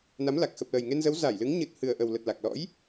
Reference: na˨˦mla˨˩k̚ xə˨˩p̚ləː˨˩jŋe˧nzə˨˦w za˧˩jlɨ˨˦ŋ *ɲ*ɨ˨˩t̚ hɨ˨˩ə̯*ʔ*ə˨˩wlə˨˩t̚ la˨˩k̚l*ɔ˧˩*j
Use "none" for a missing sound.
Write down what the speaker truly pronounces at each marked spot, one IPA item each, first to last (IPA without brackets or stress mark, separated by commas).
ɲ, ʔ, ɔ̰˧˥